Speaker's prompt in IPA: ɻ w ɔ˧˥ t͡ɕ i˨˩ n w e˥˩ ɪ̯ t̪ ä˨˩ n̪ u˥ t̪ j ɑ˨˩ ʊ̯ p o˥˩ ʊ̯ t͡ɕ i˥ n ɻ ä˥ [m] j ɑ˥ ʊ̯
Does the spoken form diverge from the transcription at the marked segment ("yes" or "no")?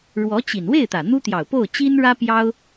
yes